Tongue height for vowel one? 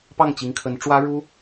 low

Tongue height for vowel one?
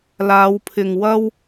low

